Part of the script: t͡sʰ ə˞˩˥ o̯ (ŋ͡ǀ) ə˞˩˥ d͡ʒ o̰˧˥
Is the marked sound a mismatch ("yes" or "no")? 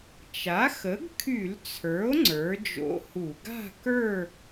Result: no